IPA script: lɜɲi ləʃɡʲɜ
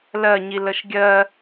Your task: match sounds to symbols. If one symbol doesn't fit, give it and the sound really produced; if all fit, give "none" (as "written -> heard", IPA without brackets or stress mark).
none